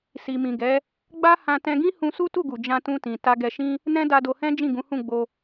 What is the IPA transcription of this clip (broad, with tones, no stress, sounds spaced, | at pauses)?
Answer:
s i˨ m ĩ˨ ɡ ɛ˨˦ | ɡ͡b a˦ h ã˧ t ɛ̃˧ ɡ ĩ˦ h ũ˧ s u˦ t u˦˨ ɡ u˨ d͡ʒ ã˧ t ũ˧ t ĩ˨ t a˧ ɡ ɛ˧ ʃ ĩ˦ | n ɛ̃˦ d a˧ d o˧ h ɛ̃˦ d͡ʒ ĩ˦˨ ɡ ũ˨˦ h ũ˦˨ ɡ͡b o˧